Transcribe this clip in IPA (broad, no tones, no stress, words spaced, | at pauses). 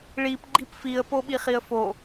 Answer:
ɭipɡ͡ǃip fiə̯poɓiχiə̯ fo